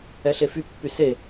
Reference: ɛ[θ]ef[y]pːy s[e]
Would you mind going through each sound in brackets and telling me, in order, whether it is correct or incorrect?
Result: incorrect: ɬ, correct, correct

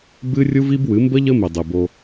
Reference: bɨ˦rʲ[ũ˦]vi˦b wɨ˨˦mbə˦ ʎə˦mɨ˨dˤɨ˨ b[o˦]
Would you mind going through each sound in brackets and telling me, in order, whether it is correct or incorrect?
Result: incorrect: u˦, correct

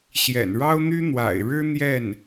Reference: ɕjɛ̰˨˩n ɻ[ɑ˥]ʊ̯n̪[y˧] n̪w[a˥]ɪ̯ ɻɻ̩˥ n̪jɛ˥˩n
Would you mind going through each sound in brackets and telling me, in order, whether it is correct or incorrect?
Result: correct, incorrect: y˥, incorrect: a̰˨˩

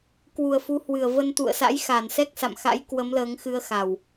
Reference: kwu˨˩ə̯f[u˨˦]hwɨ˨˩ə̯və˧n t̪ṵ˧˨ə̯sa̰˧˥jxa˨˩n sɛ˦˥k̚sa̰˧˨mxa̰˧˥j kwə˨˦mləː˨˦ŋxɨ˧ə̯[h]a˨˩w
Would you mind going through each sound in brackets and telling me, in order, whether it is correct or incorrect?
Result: correct, incorrect: x

